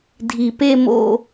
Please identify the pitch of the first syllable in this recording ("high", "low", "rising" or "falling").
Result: low